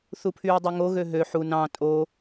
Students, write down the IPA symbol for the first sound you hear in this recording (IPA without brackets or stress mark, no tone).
θ